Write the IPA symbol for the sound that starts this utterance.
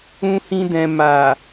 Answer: ũ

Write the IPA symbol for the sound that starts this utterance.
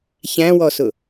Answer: ç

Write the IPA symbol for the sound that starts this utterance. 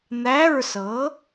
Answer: n̪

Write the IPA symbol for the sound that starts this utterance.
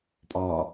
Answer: pʼ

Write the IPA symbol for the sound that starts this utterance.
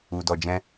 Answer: u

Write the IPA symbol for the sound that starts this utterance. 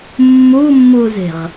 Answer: mː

